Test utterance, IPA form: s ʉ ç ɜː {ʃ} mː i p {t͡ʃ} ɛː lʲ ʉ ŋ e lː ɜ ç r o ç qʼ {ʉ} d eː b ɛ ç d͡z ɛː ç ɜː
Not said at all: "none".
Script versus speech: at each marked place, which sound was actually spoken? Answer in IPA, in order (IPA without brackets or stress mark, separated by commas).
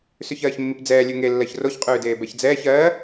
ç, d͡z, ʉː